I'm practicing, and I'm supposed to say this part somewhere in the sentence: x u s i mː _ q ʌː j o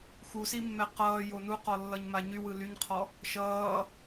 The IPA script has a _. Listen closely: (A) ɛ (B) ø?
A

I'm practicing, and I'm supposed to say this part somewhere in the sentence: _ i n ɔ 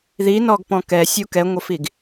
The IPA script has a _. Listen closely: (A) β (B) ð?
B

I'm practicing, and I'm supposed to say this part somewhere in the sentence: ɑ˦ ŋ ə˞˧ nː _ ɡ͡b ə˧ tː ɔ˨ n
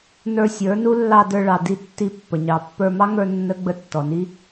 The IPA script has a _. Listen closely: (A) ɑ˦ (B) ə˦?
B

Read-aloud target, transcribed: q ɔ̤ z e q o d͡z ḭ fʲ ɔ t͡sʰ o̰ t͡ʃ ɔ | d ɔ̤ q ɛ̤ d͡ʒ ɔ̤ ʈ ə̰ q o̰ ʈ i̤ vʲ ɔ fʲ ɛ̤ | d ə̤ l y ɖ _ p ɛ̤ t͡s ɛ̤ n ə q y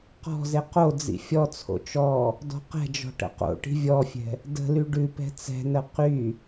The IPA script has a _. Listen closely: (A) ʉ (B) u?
A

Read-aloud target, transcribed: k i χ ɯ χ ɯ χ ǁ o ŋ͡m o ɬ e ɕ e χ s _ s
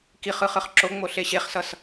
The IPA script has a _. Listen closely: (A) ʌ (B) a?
A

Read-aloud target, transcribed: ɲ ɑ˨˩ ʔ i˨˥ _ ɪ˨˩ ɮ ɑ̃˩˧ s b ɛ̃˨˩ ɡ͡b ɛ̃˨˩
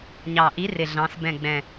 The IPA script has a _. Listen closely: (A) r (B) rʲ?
A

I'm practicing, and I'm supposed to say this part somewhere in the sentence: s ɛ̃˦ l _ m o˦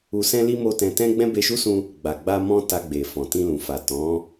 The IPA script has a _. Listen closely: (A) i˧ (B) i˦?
B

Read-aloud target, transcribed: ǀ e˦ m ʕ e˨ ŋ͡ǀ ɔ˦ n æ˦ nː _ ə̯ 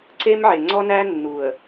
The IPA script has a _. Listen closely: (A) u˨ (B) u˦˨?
A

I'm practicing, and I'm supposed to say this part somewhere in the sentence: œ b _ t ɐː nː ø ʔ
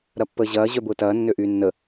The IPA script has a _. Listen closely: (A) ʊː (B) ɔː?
A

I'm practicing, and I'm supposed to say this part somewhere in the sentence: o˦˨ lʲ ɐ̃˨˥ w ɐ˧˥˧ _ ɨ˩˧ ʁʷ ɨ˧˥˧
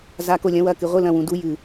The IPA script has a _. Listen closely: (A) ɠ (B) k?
B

